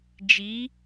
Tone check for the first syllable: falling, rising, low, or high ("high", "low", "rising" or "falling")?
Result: rising